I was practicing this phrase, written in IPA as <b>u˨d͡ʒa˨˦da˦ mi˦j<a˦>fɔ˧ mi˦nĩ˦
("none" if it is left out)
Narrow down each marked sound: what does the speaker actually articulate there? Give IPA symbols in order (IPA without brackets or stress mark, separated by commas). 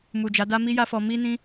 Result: m, a˦